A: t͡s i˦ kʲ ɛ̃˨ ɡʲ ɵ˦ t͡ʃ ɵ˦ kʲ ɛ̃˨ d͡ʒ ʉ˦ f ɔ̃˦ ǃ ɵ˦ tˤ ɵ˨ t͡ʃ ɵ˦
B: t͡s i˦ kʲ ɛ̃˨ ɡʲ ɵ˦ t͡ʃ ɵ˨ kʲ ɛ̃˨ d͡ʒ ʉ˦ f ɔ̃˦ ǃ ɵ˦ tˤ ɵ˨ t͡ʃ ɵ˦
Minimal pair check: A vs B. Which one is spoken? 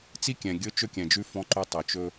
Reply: A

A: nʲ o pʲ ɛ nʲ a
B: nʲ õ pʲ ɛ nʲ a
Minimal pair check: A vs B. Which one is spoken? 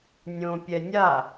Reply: B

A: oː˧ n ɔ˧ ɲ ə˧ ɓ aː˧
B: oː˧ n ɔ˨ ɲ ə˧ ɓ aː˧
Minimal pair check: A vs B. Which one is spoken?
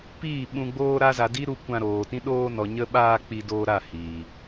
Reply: B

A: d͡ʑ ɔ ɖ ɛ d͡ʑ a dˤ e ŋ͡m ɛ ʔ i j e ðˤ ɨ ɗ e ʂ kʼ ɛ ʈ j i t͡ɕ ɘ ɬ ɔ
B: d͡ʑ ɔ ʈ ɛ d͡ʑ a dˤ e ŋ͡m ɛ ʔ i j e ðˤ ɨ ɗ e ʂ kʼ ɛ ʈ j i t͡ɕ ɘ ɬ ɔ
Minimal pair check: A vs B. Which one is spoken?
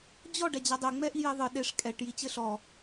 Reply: A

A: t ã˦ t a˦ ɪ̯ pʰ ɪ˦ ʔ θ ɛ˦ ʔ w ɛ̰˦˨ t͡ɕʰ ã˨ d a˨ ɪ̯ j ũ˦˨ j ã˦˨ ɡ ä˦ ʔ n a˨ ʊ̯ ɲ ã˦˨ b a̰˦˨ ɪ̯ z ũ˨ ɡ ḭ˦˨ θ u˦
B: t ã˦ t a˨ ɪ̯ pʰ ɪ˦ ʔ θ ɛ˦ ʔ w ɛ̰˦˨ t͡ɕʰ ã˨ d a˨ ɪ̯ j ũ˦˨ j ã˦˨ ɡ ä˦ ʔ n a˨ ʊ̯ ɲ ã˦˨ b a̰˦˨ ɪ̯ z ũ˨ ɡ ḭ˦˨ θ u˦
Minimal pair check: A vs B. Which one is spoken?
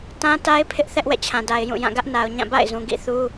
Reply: A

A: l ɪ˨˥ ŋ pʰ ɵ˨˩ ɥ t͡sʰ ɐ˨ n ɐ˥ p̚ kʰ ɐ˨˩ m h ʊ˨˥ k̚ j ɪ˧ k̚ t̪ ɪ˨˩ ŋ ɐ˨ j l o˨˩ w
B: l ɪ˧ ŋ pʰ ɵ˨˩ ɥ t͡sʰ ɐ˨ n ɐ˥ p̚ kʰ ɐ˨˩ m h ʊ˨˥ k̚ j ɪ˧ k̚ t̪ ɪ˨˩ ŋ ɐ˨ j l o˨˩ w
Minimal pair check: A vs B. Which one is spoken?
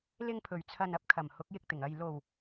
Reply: B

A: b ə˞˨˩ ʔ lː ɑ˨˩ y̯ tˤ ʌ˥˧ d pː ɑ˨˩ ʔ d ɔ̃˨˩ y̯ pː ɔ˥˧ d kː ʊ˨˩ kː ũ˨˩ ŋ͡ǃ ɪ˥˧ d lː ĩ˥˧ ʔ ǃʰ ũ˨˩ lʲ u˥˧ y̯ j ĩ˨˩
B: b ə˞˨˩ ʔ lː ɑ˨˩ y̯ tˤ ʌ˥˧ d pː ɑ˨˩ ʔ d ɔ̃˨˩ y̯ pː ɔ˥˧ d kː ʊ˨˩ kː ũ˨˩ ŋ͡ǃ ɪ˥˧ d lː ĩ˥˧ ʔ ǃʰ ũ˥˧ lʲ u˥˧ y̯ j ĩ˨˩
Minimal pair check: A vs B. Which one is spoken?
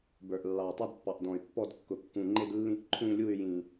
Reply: B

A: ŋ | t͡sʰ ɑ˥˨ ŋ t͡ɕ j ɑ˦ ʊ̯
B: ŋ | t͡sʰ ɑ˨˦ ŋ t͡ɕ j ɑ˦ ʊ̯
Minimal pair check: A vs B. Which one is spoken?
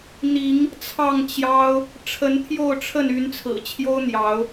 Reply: A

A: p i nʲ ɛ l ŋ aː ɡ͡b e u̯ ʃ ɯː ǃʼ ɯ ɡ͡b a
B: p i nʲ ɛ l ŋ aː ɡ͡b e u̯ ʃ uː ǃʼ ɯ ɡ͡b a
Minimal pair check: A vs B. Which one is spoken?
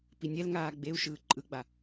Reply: A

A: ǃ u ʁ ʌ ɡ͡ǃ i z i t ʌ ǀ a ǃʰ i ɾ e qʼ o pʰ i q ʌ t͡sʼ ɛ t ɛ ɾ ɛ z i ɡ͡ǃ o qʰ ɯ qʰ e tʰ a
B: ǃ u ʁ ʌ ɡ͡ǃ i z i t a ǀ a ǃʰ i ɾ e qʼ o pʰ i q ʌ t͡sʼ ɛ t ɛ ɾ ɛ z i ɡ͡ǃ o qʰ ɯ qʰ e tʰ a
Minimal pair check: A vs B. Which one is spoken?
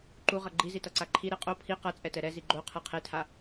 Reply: A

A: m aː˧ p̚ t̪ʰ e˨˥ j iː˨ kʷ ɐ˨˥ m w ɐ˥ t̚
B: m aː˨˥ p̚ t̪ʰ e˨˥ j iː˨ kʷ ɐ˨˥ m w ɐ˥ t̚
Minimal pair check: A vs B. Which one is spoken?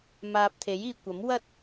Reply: A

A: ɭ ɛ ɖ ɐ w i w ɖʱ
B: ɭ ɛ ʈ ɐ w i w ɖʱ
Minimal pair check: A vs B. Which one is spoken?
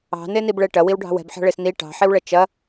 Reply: B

